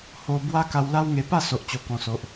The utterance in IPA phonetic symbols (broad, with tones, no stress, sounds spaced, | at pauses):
h o˧ b w a˦ k a˧ w l a˦ w ŋ e˧ p a˥˧ s o˨ ʔ t͡ɕ o˨˩ k ɔ̃˨˩ s o˨ ʔ